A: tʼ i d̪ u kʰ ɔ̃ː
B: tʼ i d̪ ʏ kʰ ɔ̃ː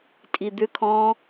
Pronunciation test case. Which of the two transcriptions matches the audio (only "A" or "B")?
B